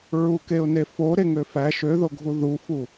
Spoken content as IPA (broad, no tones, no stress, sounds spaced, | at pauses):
ɹ u k e ʊ̯ n e f o ɾ e ŋ ø f æ ʃ ø ð o ɡʱ u ð u f u